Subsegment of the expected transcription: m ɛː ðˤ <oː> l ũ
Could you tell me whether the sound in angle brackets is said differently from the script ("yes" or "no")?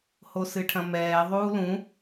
yes